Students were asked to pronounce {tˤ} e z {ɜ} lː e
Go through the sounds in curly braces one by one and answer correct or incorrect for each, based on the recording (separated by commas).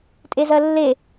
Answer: incorrect, correct